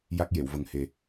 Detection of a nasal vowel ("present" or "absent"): absent